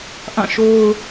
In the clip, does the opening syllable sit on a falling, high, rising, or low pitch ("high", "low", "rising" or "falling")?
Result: falling